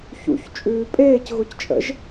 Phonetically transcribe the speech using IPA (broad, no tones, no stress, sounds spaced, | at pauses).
ç ṵ ç t͡ʃʼ ʉː pʼ eː c ɣ ʊ c t͡ʃʼ ə̰ ʒ